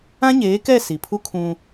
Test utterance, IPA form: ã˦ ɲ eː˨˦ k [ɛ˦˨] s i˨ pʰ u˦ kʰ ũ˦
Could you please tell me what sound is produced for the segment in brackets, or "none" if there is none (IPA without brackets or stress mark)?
ɛ˦˨